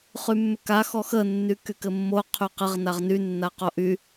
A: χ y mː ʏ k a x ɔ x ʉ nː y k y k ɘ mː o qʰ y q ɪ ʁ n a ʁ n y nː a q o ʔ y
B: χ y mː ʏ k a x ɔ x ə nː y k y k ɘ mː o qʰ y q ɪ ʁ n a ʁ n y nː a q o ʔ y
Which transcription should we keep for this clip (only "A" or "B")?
B